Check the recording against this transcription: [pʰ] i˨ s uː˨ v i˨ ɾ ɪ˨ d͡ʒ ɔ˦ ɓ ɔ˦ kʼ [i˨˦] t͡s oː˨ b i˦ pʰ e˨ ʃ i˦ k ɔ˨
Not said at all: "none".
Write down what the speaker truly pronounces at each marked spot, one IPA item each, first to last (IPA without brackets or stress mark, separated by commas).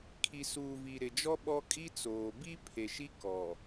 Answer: kʰ, i˦